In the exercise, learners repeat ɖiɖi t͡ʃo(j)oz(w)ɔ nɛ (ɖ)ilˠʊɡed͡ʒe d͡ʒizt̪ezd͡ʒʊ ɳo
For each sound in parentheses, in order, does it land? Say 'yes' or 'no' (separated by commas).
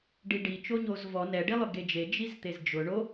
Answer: no, no, yes